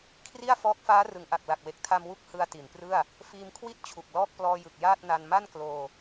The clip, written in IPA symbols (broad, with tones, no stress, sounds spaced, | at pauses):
kʰ r i˥˩ a̯ f ɔː˦˥ k̚ f aː˦˥ r ɯ˩˦ ŋ ʔ a˨˩ k̚ l a˨˩ k̚ w e˨˩ k̚ tʰ a˧ m w u˦˥ k̚ h ɯ˧ a̯ t i˩˦ n p r ɯ˥˩ a̯ | f iː˧ m kʰ w i˥˩ t̚ t͡ɕʰ u˨˩ k̚ l ɔː˥˩ k̚ p l ɔː˧ j ɯ˨˩ k̚ j aː˥˩ t̚ n a˧ n m a˥˩ n k l oː˧